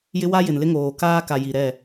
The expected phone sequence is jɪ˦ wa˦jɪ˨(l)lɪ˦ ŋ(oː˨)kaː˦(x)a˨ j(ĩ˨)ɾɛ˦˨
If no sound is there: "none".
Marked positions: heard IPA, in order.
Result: n, oː˨, k, i˨

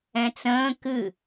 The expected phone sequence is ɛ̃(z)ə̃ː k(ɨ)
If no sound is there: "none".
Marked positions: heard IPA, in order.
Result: t͡s, ɨ

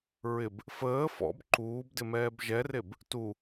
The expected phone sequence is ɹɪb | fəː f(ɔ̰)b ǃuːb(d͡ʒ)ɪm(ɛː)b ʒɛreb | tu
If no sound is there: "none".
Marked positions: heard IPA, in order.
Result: ɔ̰, d, ɛː

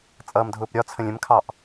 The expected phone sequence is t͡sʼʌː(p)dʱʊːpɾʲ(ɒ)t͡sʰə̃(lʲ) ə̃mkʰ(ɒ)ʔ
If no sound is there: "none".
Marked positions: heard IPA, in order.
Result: m, ɒ, lʲ, ɑ

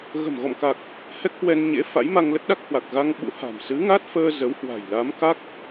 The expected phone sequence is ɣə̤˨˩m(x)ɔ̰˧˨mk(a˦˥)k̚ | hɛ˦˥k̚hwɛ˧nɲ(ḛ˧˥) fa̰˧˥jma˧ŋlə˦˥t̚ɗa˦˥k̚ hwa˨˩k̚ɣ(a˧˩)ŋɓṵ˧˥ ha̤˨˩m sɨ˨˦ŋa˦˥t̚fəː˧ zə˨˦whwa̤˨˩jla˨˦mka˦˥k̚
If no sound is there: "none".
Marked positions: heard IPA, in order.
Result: ɣ, a˨˩, ḛ˧˥, a˧

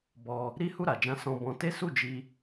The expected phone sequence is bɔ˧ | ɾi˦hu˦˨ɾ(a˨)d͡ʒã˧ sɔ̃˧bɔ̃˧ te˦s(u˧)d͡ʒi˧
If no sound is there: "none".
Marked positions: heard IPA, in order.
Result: a˨, u˦˨

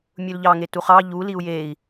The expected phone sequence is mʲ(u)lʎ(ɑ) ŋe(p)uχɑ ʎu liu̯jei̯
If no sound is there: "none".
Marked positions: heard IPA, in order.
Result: u, ɑ, t

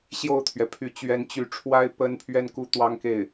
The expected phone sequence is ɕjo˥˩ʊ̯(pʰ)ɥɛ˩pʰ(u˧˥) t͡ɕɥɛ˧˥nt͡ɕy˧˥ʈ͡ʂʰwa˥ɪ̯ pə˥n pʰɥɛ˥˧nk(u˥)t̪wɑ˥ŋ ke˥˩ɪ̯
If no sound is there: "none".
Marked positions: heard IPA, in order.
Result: t̪ʰ, y˧˥, u˥˩

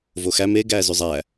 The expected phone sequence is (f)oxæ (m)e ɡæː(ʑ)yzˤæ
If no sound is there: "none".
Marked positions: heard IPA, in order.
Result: v, m, z

